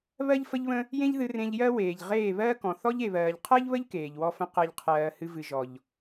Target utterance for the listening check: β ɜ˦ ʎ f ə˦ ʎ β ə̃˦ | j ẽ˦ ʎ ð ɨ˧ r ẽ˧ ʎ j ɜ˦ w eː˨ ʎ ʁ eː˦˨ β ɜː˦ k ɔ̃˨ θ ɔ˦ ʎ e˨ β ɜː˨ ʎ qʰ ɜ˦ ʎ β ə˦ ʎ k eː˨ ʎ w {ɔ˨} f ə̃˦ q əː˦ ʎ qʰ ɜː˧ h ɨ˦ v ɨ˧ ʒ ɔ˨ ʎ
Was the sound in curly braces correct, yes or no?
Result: no